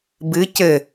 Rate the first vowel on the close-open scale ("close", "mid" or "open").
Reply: close